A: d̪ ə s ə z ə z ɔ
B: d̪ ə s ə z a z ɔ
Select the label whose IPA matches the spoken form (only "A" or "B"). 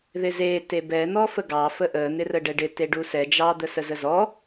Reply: A